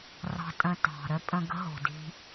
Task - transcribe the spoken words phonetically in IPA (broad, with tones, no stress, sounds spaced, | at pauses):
r ɑ̤˧ tʼ ə̃˧ t ɑ̤˩ ɾ œ˥ pʼ ə̃˧ ɡ ə̤˥ ɦ o̤˩ d i̤˧